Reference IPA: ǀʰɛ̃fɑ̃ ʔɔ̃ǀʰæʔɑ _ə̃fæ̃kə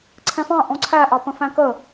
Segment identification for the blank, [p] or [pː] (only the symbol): p